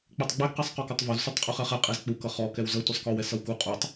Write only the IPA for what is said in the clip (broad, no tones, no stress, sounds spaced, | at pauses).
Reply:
k͡p ɛ tˤ ɡ͡b ɛ ɡ q ɛ sˤ q ɔ k ɔ tˤ v ʌ z sʷ ʌ tˤ qʼ u χ ɛ χ ɛ qʼ ɛ z k͡p u k ʌ χ ɔ k ɛ w z ʌ tʷ ʌ sˤ k ɔ w ɛ s ʌ w k u qʼ u tˤ